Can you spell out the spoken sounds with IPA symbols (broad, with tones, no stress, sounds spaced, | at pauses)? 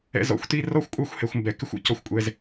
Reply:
ɛ̰˧ z ɔ̰˧ xʷ t i˦ r ɔ˦ xʷ kʷʼ ɑ˦ xʷ h ɛ˨ xʷ m b ɛ˨ k ɪ˦ xʷ ṵ˨ c ɔ˦ xʷ kʷʼ ɛ˧ z